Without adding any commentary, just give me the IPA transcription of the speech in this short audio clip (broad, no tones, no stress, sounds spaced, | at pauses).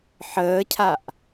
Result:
ħ əː cʰ a ʔ